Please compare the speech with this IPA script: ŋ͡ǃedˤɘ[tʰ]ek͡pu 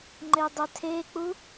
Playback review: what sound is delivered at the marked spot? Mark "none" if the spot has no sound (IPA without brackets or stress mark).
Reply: tʰ